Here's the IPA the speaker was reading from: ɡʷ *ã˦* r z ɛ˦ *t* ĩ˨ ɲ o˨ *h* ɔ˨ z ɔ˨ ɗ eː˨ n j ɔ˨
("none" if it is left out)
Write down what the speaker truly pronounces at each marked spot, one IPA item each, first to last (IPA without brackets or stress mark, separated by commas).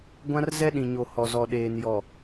ã˦, ɗ, h